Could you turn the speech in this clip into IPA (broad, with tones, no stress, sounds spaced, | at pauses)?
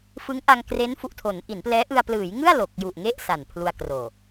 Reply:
f ɯ˦˥ ŋ ʔ a˧ ŋ k r e˦˥ n f u˨˩ ʔ tʰ o˩˦ n ʔ i˩˦ n p l ɛː˦˥ ʔ ɯ˧ a̯ p l ɯː˩˦ j ŋ ɯ˥˩ a̯ l o˨˩ k̚ j u˨˩ ʔ ŋ e˥˩ ʔ s a˨˩ n pʰ l u˧ a̯ k r oː˨˩